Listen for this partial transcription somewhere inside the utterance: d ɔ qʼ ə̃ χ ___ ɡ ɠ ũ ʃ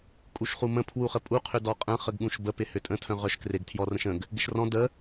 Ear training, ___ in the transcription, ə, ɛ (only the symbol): ə